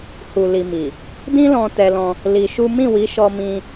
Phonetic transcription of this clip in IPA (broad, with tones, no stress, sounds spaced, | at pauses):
h u˨ l i˨ m i˨ | d ĩ˦ l ɔ̃˧ t ɛ˧ l ɔ̃˧ | l i˧ ʃ u˦ m ĩ˦˨ w i˨˦ ʃ ɔ˧ m ĩ˧